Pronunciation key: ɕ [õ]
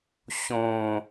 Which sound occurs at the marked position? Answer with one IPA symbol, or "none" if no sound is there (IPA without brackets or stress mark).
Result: õ